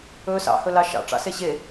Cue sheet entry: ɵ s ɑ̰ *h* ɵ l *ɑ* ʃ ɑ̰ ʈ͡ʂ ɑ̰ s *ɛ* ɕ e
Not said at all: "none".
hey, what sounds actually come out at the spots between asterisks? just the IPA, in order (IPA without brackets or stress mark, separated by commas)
h, ɑ, e